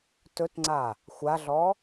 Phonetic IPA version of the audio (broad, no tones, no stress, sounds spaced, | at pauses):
t ɵ t ŋ͡ǀ a | xʷ a ɮ ɔ